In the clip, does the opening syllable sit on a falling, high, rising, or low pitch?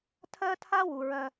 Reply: high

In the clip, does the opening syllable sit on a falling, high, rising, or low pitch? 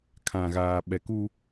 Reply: low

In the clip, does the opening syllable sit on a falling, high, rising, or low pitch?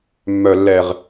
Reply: low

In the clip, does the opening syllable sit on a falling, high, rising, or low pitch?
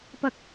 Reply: high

